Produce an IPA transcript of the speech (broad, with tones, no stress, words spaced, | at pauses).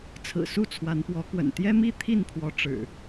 t͡sʰɹ̩˨˩ su˥˨t͡sʰwa˨˦npwɔ˨˦kwə̰˨˩n t̪jɛ˦mi˥˨ t̪ʰi˥˨npʰwɔ˨˦ ʈ͡ʂɻ̩˨˩